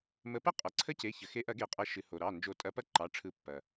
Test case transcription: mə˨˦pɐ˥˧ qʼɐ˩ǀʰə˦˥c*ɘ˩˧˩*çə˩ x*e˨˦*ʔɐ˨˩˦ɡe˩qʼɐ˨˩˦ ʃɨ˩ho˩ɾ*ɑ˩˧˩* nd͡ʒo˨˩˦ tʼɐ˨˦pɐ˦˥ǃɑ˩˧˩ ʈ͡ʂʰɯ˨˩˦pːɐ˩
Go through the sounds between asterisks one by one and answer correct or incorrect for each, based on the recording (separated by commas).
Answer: incorrect, correct, correct